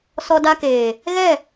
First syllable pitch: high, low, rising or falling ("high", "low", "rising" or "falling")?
high